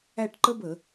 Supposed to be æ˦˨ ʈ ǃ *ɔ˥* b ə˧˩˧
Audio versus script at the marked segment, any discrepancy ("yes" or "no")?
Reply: yes